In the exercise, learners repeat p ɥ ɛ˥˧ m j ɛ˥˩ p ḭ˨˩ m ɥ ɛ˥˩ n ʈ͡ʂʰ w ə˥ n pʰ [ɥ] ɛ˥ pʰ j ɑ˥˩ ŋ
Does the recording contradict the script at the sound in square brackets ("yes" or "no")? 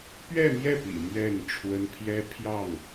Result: yes